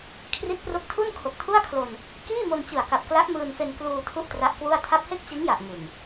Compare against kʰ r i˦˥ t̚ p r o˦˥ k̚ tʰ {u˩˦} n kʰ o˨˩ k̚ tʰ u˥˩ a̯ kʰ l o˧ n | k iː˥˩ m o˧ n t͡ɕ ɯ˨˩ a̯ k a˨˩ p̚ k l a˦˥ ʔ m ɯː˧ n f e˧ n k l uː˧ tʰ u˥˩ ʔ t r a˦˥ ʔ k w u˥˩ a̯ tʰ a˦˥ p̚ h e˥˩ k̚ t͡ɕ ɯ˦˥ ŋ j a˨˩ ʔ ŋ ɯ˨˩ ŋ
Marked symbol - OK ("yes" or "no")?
no